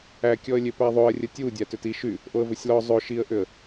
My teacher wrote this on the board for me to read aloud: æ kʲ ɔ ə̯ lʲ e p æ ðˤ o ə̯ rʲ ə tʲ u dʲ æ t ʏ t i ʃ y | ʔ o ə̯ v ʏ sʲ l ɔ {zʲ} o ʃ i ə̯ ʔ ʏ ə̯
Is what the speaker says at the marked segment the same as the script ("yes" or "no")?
no